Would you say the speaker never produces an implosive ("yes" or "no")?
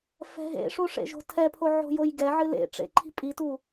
yes